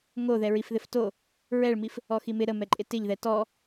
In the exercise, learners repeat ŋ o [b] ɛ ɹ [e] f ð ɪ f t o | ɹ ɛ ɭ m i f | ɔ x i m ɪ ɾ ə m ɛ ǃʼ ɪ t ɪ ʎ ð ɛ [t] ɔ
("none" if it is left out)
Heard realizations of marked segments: ð, i, t

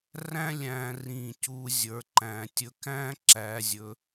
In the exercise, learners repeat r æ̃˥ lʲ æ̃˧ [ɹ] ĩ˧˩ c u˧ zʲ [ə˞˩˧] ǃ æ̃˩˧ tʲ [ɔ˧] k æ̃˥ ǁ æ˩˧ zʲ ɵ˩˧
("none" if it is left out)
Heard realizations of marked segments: r, ə˞˩˧, ɵ˧

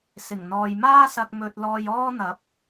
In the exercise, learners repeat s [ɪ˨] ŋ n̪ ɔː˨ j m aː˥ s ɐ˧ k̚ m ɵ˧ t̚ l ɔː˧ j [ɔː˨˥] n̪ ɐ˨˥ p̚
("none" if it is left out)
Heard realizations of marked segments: ɪ˨˩, ɔː˥

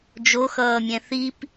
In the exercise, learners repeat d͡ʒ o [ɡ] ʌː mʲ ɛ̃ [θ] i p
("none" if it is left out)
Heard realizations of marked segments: x, θ

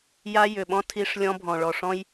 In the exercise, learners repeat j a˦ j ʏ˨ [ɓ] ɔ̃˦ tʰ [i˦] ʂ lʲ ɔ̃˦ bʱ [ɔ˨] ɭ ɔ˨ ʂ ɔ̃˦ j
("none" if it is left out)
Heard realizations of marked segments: ɓ, i˦, ɔ̃˨

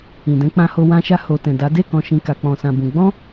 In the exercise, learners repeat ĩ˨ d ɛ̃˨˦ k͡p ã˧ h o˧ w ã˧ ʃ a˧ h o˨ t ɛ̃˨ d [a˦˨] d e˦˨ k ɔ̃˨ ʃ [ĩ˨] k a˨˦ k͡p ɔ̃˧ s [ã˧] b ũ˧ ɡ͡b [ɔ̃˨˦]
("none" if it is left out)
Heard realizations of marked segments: a˨˦, ĩ˨, ã˧, ɔ̃˦

